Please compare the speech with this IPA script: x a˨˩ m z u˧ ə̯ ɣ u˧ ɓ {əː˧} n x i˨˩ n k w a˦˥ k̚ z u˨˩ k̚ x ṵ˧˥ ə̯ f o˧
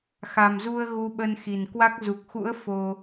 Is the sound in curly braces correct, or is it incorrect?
incorrect